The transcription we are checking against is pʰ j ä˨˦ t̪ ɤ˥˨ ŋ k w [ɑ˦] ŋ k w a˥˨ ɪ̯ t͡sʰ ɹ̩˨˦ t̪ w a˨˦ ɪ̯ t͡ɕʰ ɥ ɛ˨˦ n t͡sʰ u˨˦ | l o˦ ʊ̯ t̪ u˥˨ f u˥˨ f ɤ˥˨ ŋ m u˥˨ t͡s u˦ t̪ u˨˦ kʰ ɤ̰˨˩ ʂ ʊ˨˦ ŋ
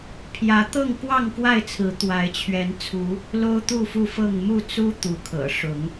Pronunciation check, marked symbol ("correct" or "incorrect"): incorrect